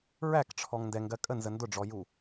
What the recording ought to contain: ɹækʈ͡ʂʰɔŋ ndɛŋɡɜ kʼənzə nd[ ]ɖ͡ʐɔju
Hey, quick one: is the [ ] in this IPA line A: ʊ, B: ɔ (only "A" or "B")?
A